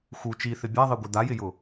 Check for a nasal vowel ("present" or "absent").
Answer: absent